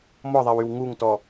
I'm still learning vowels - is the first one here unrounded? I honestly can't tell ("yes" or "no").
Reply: no